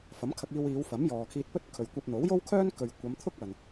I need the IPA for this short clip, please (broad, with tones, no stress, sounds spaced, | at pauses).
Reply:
f ɐ˨˥ m kʰ ɐ˧ k̚ iː˧ w iː˨˧ w f ɐ˨˥ m j ɔː˨ kʰ iː˧ t̚ p ɵ˥ t̚ kʰ ɵ˨ ɥ kʷ ɐ˧ p̚ n̪ o˨˥ w j o˥ w kʰ œː˥ n k ɵ˨ ɥ kʷ ɐ˨˧ m t̪ʰ ʊ˥ k̚ ɐ˨ n